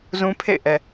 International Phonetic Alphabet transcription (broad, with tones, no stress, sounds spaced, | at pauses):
z ũ˦ pʰ ḛ˦˨ ɪ̯ ʔ ɛ˨